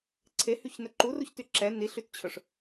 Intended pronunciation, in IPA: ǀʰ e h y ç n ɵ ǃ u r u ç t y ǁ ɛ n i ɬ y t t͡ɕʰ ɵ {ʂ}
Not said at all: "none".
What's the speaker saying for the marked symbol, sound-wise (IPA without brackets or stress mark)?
ʂ